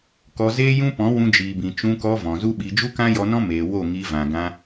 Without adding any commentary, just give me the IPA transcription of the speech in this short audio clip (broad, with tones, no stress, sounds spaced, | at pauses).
k ɔ˧ z eː˦ j ũ˦ p ɔ̃˨˦ w ũ˧ d͡ʒ iː˨ b ĩ˨ t͡ʃ ũ˧ k ɔ˧ v ɔ̃˨ z u˦ ɓ i˧ d͡ʒ u˦ k ã˦ j ɔ˧ n ɔ̃˦ m eː˨ w o˦˨ ŋ i˧ v ã˨ ɡ ã˧